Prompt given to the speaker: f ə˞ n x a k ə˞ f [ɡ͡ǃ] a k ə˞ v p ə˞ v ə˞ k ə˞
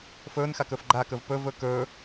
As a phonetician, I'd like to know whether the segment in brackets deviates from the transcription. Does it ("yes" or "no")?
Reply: no